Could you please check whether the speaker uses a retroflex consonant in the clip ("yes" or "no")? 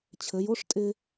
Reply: yes